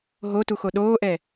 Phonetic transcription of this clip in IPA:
ɦotuxo ɗoːʔɛ

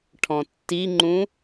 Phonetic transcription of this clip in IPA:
ʈʰɔ̃tːiŋ͡ǃũ

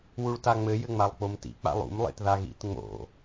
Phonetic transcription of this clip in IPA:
wuɭtaŋ͡mɘ jɘŋ͡malˠk͡pomtḭ k͡pa̰lˠṵm lˠḛtðaɣḭt ŋ͡mo̰

